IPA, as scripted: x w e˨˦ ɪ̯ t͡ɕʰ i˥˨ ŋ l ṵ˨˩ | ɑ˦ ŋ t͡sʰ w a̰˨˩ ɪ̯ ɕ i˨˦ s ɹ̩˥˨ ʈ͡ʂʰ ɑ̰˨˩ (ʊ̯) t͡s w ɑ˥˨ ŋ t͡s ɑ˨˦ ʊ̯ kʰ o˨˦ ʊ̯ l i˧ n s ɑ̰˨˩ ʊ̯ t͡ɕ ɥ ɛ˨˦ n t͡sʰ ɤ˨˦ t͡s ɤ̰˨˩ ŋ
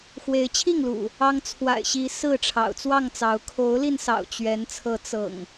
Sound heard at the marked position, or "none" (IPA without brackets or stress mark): ʊ̯